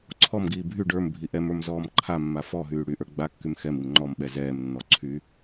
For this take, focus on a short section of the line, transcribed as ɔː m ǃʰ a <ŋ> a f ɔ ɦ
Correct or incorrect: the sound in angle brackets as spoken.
incorrect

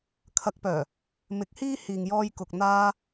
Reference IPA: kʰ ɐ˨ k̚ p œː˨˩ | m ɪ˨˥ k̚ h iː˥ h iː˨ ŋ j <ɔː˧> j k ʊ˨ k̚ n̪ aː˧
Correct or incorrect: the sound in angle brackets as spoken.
correct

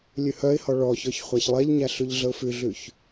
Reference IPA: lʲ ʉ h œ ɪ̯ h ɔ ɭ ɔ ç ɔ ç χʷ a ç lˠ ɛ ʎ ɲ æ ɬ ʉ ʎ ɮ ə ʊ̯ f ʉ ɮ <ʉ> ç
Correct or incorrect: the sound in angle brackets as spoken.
correct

